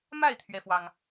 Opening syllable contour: falling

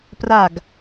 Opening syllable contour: falling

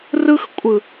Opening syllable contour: high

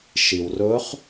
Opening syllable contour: low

